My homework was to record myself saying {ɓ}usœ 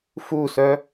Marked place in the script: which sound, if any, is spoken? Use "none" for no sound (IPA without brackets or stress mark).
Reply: f